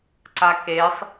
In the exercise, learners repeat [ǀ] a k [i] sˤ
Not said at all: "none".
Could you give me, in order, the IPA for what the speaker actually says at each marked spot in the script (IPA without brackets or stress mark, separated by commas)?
ǀ, e